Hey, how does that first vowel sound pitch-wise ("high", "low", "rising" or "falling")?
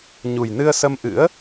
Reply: low